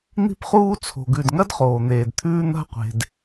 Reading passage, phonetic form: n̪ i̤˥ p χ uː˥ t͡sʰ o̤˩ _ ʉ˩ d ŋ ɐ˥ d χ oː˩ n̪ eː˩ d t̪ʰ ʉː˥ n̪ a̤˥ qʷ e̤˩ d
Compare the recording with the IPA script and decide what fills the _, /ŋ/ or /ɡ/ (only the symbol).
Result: ɡ